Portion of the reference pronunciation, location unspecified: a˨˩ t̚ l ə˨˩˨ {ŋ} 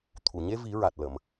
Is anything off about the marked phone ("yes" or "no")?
yes